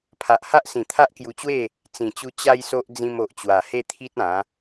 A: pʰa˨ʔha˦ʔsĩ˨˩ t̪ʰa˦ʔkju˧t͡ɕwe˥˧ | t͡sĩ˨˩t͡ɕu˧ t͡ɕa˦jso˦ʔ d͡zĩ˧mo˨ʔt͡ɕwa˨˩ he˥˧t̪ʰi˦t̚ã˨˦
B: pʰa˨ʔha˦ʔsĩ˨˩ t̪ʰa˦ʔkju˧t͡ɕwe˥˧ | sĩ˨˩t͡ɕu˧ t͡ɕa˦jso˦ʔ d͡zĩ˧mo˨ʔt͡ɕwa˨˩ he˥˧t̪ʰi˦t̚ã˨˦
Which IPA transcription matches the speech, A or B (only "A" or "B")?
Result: A